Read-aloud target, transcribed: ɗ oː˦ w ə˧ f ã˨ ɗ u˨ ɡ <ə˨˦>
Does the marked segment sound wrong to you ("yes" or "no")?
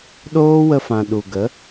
no